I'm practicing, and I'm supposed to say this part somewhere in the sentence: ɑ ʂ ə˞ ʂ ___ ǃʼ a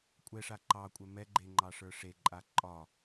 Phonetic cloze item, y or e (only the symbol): e